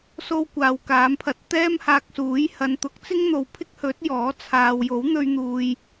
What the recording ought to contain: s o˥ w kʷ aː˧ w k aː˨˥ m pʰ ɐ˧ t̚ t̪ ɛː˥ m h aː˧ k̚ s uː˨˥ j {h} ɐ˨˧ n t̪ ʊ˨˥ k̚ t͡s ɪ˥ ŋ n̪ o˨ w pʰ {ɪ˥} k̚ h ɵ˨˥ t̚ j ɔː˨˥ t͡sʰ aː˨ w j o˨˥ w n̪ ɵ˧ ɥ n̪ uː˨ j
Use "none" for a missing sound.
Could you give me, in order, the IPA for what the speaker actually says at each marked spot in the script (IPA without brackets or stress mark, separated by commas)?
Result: h, ɪ˥